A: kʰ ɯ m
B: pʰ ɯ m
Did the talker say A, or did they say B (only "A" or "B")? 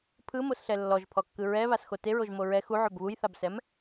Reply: B